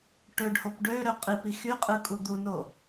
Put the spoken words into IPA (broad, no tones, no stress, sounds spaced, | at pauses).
ʈ ø ɖ h o p ɖ ø ɾ ø qʼ i p i x y qʼ ɯ kʼ u d̪ u n o